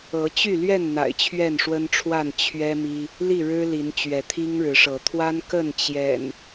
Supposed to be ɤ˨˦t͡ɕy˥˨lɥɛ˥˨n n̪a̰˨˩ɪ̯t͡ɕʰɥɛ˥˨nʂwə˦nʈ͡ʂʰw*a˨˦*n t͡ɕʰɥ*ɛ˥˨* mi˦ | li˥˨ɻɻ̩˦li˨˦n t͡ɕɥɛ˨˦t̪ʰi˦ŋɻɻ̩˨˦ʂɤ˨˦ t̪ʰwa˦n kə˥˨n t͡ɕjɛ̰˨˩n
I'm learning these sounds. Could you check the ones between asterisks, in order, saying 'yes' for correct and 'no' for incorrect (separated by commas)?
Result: no, no